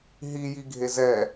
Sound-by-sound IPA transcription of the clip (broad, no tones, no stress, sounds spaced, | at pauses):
ɦ i j i ɡʱ e z ɛ